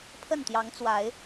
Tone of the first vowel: falling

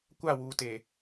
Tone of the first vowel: falling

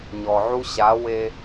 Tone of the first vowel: low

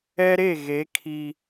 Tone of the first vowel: high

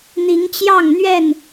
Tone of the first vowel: rising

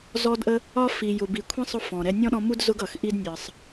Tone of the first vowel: high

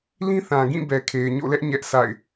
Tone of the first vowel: high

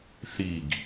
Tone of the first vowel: falling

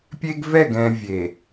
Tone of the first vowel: high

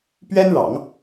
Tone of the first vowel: high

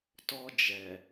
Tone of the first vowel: high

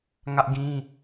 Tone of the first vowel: high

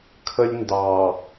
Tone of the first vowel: high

